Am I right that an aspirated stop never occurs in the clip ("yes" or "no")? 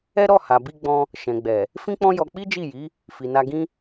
yes